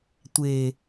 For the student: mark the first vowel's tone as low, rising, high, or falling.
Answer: low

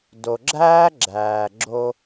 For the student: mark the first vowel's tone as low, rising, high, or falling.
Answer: low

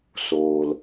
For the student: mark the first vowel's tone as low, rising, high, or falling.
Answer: low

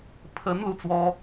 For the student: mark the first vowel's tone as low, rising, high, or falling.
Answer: rising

